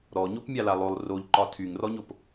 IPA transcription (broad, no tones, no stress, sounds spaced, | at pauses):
ɾ ɔ ɲ o p mʲ a l a lˠ o lˠ r o ʎ ǃ ɒ tʰ y ŋ r ɔ ɲ o p